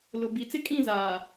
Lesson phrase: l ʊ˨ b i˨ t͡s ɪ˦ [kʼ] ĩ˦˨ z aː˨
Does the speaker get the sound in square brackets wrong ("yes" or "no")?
no